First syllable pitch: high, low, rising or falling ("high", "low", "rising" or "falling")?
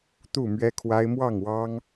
falling